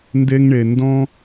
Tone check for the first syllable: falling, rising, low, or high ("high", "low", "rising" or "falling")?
high